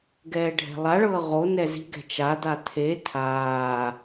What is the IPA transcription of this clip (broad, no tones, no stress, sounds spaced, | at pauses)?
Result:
ɡ ɛː ɖʱ ɛ̤ lˠ a ɭ ɤː ʁ o n ɛ z i̤ ɡ ɛ̤ t͡ʃ a d̪ a t̪ʰ e tʰ aː